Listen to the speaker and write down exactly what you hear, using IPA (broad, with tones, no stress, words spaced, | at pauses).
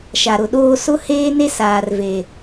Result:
ʃa˨ɾʊ˨ɗoː˦ sʊ˦heː˦ne˦ saː˨rve˨